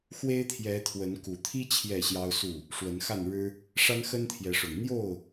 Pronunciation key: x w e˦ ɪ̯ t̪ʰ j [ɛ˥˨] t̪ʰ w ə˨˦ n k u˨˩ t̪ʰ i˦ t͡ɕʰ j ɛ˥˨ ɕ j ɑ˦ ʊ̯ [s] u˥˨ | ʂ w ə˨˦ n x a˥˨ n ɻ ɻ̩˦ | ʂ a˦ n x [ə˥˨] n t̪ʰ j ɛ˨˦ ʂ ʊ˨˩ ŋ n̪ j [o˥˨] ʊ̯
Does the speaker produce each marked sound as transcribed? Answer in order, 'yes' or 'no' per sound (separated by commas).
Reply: no, yes, no, yes